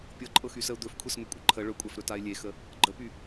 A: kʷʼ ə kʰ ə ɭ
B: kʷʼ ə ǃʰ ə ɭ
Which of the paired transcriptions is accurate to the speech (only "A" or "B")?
B